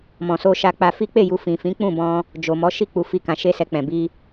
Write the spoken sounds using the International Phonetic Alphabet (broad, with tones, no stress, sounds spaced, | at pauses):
m ɔ̃˨ s o˧ ʃ a˧ k͡p a˧ f i˦ k͡p e˦˨ j u˧ f ĩ˨ f ĩ˨˦ k͡p ũ˦˨ b ɔ̃˧ | d͡ʒ o˨ m ɔ˨˦ ʃ i˦˨ k͡p u˧ f i˦ k ã˧ ʃ e˦ s ɛ˧ k͡p ɛ̃˨ b i˧